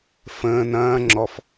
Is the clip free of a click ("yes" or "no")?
no